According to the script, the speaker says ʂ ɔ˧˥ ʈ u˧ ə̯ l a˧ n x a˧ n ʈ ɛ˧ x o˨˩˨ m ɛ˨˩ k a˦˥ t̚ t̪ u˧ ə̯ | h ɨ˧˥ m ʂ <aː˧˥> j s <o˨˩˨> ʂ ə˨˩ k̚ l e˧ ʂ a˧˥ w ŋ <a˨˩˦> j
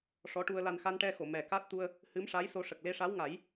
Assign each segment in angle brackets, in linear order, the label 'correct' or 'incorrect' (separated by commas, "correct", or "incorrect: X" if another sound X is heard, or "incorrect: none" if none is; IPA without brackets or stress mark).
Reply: incorrect: a˧˥, incorrect: o˧, correct